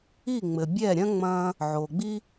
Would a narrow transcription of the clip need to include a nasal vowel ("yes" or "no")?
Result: yes